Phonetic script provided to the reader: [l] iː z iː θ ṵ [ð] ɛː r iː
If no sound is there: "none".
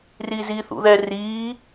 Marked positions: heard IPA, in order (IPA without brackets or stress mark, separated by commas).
r, ð